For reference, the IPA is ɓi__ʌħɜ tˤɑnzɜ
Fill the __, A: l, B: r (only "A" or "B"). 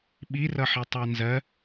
B